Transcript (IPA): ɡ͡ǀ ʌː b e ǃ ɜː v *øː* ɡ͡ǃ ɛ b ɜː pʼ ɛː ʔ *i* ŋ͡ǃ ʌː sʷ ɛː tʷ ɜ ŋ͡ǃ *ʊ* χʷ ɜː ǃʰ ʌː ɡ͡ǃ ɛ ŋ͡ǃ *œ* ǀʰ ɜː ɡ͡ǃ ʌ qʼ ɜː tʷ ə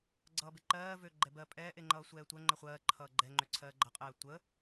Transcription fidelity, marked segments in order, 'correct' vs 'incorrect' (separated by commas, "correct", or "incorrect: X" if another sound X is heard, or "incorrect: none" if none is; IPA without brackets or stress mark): correct, incorrect: e, incorrect: ə, incorrect: ø